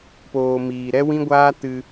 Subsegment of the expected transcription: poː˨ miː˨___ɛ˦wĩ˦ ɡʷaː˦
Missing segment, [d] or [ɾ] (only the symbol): ɾ